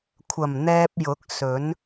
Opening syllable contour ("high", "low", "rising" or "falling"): low